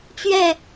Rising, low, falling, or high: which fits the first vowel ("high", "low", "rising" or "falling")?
falling